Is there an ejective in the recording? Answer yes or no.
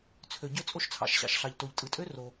yes